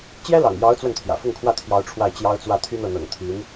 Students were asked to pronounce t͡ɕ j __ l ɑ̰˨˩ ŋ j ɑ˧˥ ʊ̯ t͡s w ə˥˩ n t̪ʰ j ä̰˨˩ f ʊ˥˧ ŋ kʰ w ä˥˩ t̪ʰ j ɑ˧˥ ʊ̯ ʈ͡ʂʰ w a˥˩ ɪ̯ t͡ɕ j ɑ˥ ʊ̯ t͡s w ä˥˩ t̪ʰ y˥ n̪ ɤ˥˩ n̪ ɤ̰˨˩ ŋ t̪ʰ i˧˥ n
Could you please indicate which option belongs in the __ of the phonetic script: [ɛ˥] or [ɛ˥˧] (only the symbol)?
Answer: ɛ˥